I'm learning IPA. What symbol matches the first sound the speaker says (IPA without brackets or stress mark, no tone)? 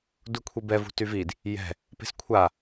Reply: d